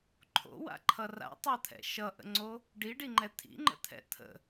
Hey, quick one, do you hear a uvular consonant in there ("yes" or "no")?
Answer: no